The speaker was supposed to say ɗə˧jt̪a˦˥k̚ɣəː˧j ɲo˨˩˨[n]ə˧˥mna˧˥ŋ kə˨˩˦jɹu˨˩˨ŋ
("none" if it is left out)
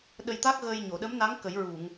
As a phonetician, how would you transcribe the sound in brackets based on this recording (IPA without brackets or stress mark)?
ɗ